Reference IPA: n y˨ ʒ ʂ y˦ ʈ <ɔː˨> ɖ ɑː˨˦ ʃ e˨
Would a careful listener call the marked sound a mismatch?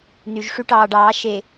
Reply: yes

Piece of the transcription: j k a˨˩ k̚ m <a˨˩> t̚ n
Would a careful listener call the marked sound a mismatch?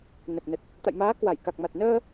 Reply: no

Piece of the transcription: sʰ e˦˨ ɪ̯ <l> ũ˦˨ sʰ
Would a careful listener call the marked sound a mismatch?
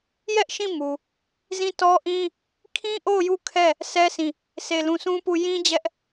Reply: no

